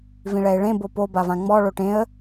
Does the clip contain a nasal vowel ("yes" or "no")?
yes